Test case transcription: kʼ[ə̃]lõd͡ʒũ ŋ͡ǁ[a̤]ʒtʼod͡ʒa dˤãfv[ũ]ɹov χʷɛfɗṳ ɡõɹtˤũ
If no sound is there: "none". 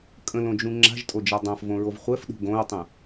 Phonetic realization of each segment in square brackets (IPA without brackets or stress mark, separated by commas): ə̃, a̤, õ